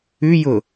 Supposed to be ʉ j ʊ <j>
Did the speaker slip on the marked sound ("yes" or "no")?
yes